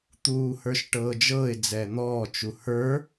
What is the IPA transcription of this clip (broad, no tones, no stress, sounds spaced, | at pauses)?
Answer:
t̪ uː h ə˞ ʃ ʈ ɤː d͡ʒ ɤː ɪ̯ d͡z ɛː n̪ ɔː t͡ʃ u h ə˞